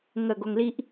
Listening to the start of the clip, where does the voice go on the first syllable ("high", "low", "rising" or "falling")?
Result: low